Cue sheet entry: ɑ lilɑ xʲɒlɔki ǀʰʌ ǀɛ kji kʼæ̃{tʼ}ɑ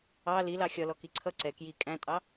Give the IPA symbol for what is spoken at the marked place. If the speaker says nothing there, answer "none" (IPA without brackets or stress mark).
tʼ